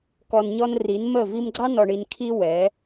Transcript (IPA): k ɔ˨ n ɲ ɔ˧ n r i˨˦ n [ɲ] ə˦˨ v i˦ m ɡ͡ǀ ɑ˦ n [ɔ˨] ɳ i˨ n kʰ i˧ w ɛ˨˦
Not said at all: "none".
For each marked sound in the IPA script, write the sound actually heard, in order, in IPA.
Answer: m, ɔ˨

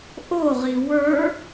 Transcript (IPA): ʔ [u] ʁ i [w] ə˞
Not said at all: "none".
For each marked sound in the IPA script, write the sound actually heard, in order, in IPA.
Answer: o, w

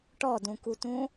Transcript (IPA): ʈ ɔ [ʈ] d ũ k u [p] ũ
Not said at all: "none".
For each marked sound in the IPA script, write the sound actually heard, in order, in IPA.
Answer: none, t

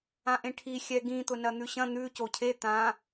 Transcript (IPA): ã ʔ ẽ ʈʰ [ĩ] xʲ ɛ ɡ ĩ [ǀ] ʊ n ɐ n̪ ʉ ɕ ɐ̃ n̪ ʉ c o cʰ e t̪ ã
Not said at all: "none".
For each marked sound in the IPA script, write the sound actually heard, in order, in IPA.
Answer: i, t̪

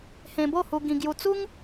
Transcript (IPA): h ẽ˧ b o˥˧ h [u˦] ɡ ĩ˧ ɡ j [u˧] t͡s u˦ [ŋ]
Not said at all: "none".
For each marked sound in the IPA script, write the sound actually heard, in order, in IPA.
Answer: u˧, u˧, ŋ

